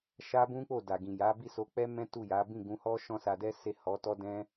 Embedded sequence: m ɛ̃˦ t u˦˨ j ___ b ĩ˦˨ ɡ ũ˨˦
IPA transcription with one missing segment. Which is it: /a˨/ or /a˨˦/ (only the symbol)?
a˨˦